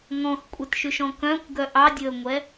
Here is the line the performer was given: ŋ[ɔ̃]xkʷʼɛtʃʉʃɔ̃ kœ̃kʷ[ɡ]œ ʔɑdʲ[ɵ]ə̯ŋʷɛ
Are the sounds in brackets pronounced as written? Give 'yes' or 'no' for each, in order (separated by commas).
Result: yes, yes, yes